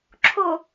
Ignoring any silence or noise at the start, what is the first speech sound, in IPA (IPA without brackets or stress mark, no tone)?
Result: ǁʰ